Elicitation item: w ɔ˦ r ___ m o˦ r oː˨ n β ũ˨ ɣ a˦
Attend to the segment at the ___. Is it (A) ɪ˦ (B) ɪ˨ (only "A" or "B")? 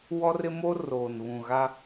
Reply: A